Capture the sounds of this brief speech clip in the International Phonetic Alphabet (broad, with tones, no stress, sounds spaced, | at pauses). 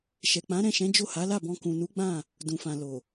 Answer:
ʃ ɛ˨ k͡p ã˨˦ ɾ ɛ̃˦˨ ʃ ɛ̃˨˦ d͡ʒ o˦˨ h a˨˦ l a˦˨ b ɔ̃˧ k ũ˨ n u˨˦ ɡ͡b ã˦˨ | d ũ˨ f ã˨ l o˨